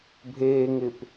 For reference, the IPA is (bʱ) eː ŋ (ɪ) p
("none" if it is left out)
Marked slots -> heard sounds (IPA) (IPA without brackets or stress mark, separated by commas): bʱ, ɪ